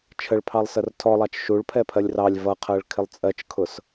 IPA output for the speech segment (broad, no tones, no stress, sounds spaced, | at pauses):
t͡ʃʰ ə ɭ pʰ ɑ lˠ s ə r tʰ ɔ lˠ ɑ t͡ʃ ʃ u ɭ pʰ ɛ pʰ ɜ lʲ r ɑ lʲ v ʌ qʰ ɜ ɭ kʰ ɪ lˠ t͡sʼ ɜ t͡ʃ kʰ ʊ s